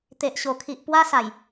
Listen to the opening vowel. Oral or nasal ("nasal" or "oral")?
oral